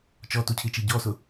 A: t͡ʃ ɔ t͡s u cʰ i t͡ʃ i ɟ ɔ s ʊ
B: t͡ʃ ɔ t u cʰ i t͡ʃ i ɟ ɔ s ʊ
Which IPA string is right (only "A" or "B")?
B